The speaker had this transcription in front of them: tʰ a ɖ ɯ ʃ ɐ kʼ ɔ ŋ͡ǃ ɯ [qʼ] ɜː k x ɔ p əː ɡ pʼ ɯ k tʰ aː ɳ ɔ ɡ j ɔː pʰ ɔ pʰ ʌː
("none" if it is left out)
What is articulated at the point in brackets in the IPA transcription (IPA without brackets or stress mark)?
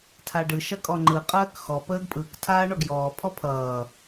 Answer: qʼ